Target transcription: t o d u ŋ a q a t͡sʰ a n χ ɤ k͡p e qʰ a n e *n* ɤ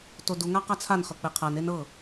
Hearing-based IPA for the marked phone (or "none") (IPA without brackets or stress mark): n